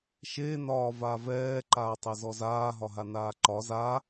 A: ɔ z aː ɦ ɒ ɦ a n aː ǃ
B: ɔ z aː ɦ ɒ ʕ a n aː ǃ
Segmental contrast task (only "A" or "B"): A